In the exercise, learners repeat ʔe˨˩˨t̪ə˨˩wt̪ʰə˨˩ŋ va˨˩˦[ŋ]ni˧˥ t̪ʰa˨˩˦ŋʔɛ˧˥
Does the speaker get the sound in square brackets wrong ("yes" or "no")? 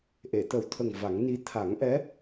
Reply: no